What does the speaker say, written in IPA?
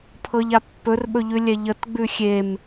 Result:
pʰ ɤ ʎ a pː ɵ r ɓ ɵ ʎ ʉ lʲ ɛ ʎ ə t ɡ͡b ʉ xʲ e m

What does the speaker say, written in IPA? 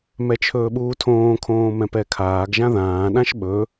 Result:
m ɛ t͡ʃʰ ɵː ɓ uː tʰ õː kʰ õː m ɛ̃ p ɛ kʰ aː ɡ ʒ ã ð ãː ɗ ã ʃ ɓ ɵ

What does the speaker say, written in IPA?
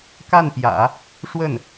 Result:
k a˥˩ n p j ä̰˨˩˦ | ʂ w ə˥˩ n

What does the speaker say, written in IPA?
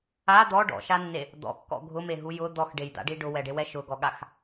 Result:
a d̪ ɔ ɖ ɔ̰ ʃ a nː e | d̪ ɔ̰ kː ɔ̰ ɡʱ ʊ m e ɦ u j ʊ d̪ ɔ x ɖ e j d̪ a̰ ɖ i ɖ ʊ w ɛ ɖ e w ɛ ʃ ʊ ɡ ɔ ɠ a x

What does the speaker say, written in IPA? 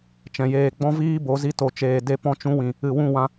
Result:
t͡ʃ ɛ̃˨ j eː˧ ɡ͡b ɔ̃˦ v iː˦ b o˨˦ z i˧ t o˨ t͡ʃ eː˨ d e˧ p ɔ̃˧ t͡ʃ ũ˧ w ĩ˨ | ɨ˨ w ũ˦˨ w ã˧

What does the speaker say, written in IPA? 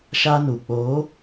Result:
ʃ a˦ n u˨ k͡p oː˨˦

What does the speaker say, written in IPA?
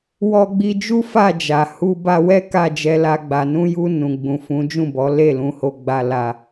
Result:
w ɔ˧ ɡ͡b i˧ d͡ʒ u˦ f a˦˨ d͡ʒ a˨ h u˧ b a˧ w ɛ˦ k a˦˨ d͡ʒ ɛ˧ l a˧ ɡ͡b a˨ n ũ˧ j u˧ n ũ˨ ɡ͡b ũ˨ f ũ˨˦ d͡ʒ ũ˦˨ b ɔ˨˦ l e˦˨ l ũ˨˦ h o˧ ɡ͡b a˧ l a˧

